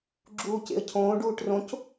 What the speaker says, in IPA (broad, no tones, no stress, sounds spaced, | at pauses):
ɡ͡ǁ uː c ḛ ə̯ cʰ õː ɖ uː ʈ r õ c